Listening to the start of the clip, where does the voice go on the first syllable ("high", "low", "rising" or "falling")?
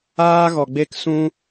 high